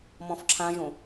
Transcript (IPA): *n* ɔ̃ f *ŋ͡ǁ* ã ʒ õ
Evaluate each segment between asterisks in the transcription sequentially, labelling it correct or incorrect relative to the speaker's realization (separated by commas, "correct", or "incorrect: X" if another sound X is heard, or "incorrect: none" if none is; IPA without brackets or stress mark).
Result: incorrect: m, incorrect: ǁʰ